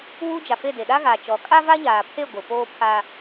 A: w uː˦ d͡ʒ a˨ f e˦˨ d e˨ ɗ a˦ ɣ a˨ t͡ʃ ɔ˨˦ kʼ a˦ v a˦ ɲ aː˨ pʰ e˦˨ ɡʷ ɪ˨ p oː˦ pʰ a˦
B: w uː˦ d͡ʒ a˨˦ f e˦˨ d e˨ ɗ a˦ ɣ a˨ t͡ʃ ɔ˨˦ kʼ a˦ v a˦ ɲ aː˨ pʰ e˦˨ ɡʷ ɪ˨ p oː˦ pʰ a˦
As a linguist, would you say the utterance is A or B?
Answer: A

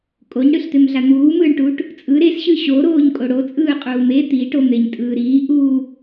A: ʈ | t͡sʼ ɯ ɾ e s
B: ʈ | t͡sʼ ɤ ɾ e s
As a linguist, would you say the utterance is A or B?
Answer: A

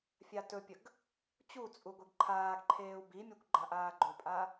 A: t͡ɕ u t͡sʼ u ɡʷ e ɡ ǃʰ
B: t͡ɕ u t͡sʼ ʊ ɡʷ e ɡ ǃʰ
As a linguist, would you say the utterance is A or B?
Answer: A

